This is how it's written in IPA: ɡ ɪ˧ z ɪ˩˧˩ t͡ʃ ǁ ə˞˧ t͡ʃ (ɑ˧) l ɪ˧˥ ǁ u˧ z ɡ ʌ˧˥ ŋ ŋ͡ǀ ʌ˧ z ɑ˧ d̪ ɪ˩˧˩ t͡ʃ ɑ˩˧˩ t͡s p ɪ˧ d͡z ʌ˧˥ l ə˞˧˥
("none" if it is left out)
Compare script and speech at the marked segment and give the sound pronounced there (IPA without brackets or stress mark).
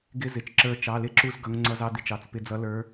ɑ˩˧˩